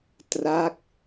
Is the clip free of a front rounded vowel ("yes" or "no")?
yes